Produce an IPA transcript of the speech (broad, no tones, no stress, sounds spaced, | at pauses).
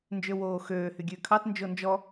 n d͡ʒ ø w oː x øː h y ɡʲ ʉː kʰ ɑ t n d͡ʒ o n d͡ʒ ɔ